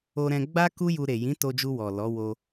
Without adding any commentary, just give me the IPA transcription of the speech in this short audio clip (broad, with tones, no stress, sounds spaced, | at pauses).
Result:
o˧ ɾ ɛ̃˧ ɡ͡b a˦ k u˦ j u˧ ɾ e˨ j ĩ˨˦ t o˧ d͡ʒ u˧ w ɔ˨ l ɔ˨˦ w o˧